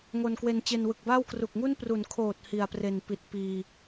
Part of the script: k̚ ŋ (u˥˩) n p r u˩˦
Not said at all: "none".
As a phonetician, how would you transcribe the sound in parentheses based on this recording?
u˥˩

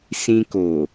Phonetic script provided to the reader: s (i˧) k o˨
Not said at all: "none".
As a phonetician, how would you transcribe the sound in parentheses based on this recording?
ĩ˧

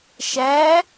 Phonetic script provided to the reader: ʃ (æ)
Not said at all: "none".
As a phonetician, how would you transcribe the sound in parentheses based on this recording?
æ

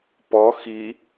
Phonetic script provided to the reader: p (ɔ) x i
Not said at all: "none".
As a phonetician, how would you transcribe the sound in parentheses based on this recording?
ɔ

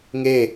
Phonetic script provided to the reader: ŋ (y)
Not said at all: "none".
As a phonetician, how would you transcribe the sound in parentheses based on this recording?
e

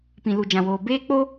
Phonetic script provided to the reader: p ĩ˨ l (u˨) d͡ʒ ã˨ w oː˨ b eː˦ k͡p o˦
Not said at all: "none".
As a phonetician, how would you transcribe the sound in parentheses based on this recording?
u˨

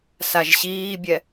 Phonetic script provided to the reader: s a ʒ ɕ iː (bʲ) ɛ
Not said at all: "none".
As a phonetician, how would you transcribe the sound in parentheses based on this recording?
bʲ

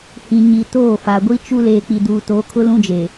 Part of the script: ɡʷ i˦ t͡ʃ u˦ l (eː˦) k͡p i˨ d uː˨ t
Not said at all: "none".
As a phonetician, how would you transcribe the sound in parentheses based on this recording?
eː˨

